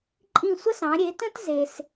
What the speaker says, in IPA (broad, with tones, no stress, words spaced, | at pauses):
ǃʼĩ˦˨sʷə˥sɑ̃˨˦ ɾʲe˨˦tə̃˥t ze˨s